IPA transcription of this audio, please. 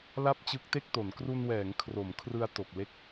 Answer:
l a˥˩ p̚ t͡ɕ ɯ˦˥ k̚ t e˥˩ k̚ t o˩˦ n k r u˧ n w ɛː˩˦ ŋ kʰ r o˩˦ m kʰ r ɯ˧ a̯ t o˨˩ k̚ l e˥˩ k̚

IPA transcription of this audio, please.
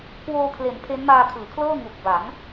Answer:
k w oː˧ kʰ l e˩˦ n pʰ e˦˥ n m aː˧ kʰ ɯː˩˦ kʰ l ɤː˥˩ ŋ u˨˩ k̚ b a˩˦ ŋ

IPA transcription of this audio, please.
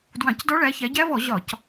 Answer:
d w ɑ̃˧˩˧ c d ɔ˦˥ ɭ æ˨˦ ç æ˨˦ ɟ æ˦˥ v ɔ˧˩˧ ʑ ɒ˧˩˧ c

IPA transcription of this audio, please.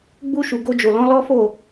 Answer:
ɡ͡b u˧ ʃ u˨ ɡ o˧ d͡ʒ o˨ l ɔ̃˨˦ l ɔ˦ f o˦˨

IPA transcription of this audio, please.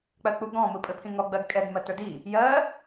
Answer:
k͡p ɜ k͡p u ɡ ɔ̃ m ɯ pʼ ɘ pʰ ĩ ŋ ɔ ɡ͡b ɜ ɡ kʼ ɛ ɡ m ɜ t ə˞ d i | j ɜ

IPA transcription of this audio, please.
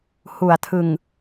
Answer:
h u˩˦ a̯ tʰ ɯ˨˩ ŋ

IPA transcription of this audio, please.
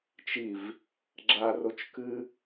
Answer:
t͡ʃ i v | ɡ͡ǁ a r o t͡ʃ k ɨ

